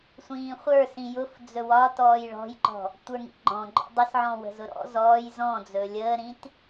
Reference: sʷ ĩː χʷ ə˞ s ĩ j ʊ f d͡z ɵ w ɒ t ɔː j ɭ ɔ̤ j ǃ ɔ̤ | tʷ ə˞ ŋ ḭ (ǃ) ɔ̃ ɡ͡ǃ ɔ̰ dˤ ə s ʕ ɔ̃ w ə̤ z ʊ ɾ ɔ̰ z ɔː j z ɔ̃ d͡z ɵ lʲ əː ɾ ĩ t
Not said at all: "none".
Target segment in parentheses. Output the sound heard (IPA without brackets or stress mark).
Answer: ɡ͡ǃ